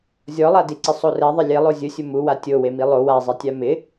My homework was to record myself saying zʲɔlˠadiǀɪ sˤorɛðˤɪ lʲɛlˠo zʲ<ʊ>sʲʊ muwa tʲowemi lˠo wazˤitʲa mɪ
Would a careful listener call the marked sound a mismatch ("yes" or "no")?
no